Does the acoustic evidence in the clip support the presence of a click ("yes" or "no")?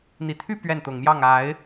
no